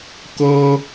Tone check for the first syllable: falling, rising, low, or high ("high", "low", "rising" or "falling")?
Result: high